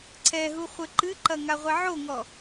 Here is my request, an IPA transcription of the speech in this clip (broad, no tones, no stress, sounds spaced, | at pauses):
ǀʰ ɛ ɦ u χʷ ɘ ǃ ɨ ǃ ɐ ŋ a ʁʷ ɛ ʕ o ŋ ɔ